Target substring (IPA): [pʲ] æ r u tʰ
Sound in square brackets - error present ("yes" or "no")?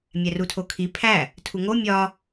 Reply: yes